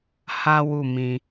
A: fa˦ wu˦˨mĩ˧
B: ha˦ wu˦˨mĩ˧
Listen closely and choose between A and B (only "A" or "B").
B